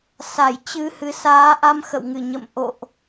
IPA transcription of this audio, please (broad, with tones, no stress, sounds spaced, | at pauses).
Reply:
s a˧˩ j t͡ɕ ɨ˧ h ɨ˨˦ s aː˨˦ ʔ a˧ m x ə̰˧˨ w ŋ ɨ˧˩ ɲ ə̰˧˨ m ʔ o̰˧˨ ʔ